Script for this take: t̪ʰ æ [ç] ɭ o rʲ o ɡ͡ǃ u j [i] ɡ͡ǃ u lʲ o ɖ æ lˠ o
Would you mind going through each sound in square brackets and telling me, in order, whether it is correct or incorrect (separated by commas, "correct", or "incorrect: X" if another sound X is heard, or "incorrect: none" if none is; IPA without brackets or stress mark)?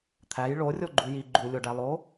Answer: incorrect: j, correct